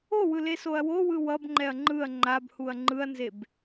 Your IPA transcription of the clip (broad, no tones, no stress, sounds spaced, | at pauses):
o w ɯ l e s o ɐ̯ w o w ɯ w ʌ b ŋ͡ǃ ɛ ɐ̯ ŋ͡ǃ ɯ ɐ̯ ŋ͡ǃ a b h u ɐ̯ ŋ͡ǃ ɯ ɐ̯ n z e b